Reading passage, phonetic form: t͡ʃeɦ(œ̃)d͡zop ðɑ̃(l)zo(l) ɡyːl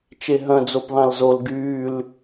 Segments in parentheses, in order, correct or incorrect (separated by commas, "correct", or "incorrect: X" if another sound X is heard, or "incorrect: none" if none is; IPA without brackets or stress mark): correct, correct, correct